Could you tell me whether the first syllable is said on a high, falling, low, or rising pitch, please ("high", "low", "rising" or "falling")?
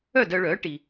falling